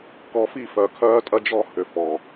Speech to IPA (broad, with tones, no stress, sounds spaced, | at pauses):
k ɔ˨ f i˦˨ f œ˨ kʰ œː˦ tʼ ɐ˦ d͡ʒ ɔ˦˨ h ʏ˨ f ɔ˨